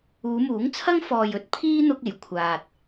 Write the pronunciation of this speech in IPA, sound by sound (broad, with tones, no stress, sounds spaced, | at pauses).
uː˨˧ m uː˨˥ ŋ t͡sʰ ɐ˥ ŋ f ɔː˨ j ɵ˨˥ t̚ pʰ iː˥ n̪ ʊ˧ k̚ e˨˩ j kʷʰ aː˨ t̚